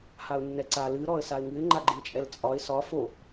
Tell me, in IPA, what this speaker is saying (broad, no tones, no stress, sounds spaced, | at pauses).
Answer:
h a ʊ̯ nː ɛ ǀ a l ɨ ɾ ɔ ə̯ s a ɪ̯ ŋ ɨ ɪ̯ ŋ͡ǃ a ɡ͡ǃ ɨ ɪ̯ t͡ʃʼ ɛ l t͡sʼ ɒ ɪ̯ s ɒ f o